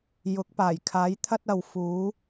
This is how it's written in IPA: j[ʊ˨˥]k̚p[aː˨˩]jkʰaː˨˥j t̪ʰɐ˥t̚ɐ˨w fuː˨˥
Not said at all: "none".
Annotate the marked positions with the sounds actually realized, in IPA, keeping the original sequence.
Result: ʊ˨˥, aː˨˩

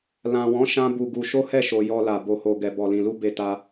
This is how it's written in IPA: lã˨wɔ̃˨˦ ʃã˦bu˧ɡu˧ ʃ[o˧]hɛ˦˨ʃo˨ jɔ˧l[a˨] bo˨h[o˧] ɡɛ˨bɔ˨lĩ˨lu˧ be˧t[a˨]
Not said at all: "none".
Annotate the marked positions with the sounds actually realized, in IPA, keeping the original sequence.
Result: o˦, a˨, o˨, a˧

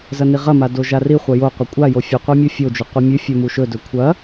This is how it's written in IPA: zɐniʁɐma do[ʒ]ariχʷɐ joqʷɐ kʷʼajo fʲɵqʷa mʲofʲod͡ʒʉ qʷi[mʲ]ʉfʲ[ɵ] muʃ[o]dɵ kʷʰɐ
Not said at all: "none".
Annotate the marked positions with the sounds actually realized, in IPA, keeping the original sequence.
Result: ʒ, mʲ, ɵ, ɵ

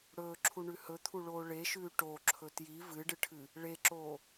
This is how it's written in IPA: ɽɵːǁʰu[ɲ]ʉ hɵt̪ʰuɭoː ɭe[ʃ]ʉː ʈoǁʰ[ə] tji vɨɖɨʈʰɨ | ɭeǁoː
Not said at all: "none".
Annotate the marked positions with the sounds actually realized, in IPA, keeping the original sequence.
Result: ɳ, ʃ, ɵ

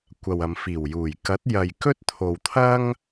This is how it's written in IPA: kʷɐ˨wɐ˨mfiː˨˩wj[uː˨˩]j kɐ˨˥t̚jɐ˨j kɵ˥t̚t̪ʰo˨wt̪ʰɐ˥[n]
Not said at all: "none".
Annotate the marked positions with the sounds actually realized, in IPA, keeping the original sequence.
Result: uː˨˩, ŋ

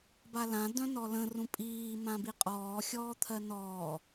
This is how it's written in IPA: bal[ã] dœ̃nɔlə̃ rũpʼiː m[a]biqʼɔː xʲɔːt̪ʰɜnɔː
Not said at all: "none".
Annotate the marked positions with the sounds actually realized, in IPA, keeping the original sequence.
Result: ã, ã

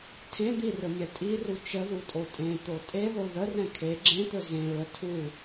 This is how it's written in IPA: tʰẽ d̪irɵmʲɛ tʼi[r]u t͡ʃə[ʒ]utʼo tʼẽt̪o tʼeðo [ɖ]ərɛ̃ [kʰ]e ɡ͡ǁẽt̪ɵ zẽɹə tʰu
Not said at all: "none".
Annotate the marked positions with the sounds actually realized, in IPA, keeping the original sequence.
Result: r, ð, ð, kʰ

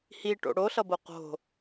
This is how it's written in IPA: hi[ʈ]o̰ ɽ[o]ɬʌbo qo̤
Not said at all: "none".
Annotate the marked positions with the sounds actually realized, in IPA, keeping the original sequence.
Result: ʈ, o

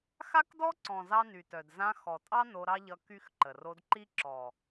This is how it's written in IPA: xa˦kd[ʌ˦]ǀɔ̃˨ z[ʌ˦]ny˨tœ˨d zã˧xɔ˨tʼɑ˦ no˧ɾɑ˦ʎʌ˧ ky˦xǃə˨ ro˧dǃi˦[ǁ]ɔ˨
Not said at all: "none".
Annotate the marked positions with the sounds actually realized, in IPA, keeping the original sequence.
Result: ɔ˦, ɑ˦, ǁ

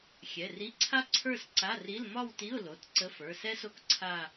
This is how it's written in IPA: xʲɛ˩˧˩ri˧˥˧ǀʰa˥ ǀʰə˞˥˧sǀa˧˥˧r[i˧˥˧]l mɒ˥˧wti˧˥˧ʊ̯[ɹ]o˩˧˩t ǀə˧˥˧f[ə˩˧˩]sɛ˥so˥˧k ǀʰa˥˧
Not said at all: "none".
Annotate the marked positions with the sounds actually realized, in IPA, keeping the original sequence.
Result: i˧˥˧, l, ə˞˩˧˩

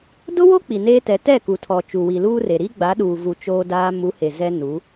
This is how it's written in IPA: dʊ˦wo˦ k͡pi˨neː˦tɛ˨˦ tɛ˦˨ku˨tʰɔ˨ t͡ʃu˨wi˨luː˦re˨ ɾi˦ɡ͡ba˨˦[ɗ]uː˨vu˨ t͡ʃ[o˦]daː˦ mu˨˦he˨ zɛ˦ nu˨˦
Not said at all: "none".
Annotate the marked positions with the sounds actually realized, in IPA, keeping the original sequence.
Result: ɗ, oː˦

